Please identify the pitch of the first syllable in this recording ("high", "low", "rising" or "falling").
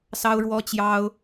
high